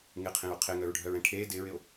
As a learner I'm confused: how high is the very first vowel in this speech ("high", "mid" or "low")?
high